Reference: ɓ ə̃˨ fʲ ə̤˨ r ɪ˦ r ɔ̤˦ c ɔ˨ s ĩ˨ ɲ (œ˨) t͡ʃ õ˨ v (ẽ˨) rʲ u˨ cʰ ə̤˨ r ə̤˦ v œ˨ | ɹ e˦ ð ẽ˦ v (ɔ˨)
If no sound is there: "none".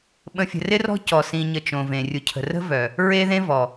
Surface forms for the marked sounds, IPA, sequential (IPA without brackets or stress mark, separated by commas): ə˨, ẽ˨, ɔ˨